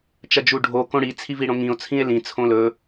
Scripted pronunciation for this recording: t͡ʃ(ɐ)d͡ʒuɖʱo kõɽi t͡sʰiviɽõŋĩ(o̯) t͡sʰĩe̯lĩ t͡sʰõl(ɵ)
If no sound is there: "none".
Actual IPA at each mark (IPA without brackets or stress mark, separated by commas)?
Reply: ɐ, o̯, ɵ